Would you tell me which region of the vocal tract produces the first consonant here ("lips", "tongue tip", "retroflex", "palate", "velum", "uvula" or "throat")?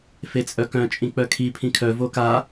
lips